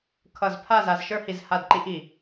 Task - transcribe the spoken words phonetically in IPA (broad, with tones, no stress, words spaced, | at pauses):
kʰʌ˦˨z pʰa˦˨za˨zʃə˞˦hi˨z ha˦˨dǃi˦ʔ i˨